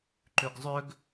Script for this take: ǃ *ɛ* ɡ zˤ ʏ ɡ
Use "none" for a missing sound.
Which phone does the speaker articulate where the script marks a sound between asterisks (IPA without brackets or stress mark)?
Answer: ʏ